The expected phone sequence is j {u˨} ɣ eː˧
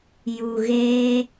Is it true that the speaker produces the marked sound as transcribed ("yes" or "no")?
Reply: yes